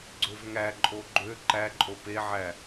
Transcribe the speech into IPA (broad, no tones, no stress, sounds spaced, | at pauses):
ɡ͡ǀ ø v ŋ æ ǃʼ o ɡ͡ǃ ø ǃ æ ǃʼ o p e ʕ æ